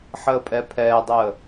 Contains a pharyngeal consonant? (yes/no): yes